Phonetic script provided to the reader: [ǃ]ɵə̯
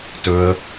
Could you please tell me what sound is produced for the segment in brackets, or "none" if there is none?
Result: t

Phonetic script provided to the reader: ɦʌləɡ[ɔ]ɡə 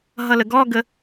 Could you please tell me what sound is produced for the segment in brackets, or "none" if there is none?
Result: ɔ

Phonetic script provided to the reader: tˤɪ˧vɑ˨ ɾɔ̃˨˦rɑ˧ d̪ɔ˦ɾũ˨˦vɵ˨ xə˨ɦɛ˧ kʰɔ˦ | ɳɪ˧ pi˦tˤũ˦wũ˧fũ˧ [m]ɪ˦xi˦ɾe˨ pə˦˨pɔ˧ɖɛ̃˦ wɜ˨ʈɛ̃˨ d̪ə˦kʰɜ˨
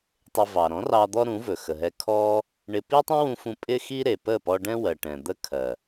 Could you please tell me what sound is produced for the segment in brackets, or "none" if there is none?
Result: pʼ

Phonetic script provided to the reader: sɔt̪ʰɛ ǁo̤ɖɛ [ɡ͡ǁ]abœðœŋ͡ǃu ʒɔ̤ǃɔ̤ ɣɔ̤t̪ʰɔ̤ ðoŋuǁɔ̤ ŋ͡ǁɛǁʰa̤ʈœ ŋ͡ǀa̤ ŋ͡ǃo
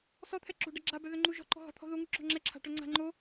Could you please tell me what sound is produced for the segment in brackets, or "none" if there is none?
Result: ɡ͡ǁ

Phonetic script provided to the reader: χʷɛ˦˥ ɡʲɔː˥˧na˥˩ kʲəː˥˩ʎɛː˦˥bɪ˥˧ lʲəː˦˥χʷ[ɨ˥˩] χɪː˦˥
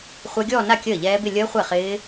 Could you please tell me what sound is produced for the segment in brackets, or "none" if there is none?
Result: ɛ˥˩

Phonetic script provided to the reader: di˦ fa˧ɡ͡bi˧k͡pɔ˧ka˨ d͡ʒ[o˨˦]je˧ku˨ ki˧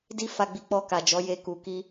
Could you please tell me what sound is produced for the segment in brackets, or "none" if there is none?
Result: ɔ˨˦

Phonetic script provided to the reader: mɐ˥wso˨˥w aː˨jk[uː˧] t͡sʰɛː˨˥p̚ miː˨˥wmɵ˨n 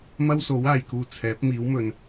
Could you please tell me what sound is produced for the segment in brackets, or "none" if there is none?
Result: uː˧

